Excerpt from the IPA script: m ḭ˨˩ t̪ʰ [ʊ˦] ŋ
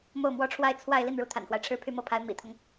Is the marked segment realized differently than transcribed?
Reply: no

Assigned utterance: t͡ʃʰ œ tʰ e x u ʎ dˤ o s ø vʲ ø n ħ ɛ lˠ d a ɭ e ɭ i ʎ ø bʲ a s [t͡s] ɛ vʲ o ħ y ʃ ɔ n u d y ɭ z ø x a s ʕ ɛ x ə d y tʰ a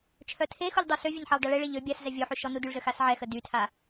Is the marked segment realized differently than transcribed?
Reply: yes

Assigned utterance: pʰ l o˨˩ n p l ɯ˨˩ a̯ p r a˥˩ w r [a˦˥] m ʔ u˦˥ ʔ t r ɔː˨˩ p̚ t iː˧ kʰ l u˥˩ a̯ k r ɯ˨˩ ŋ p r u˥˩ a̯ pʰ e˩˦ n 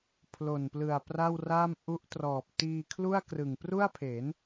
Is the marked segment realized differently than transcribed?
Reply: yes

